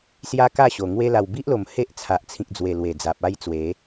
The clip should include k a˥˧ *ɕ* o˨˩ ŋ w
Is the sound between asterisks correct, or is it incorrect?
correct